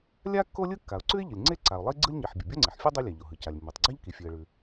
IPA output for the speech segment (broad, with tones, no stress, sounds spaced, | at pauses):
lʲ a˥ kː o˥ lʲ ɯ˥ kː a˩ ʊ̯ ǀ ʉ˥ ɪ̯ ʎ ɯ˩ lʲ ŋ͡ǀ e˥ ǀ a˩ ʊ̯ lˠ i˥ ɡ͡ǀ ɯ˥ lʲ ɲ i˩ ħ bʲ ɯ˩ bʲ o˥ ŋ͡ǀ e˩ ħ fʲ ʉ˥ dˤ i˥ lʲ a˩ ʎ o˩ ɦ ɯ˩ c a˩ lʲ mː i˩ tˤ ɡ͡ǀ a˥ ʎ k i˩ fʲ ʉ˩ ə̯ ɭ ʉ˩